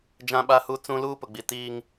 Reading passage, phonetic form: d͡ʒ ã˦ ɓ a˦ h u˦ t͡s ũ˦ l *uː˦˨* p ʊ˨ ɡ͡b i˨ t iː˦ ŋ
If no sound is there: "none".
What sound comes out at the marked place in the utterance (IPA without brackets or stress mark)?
uː˦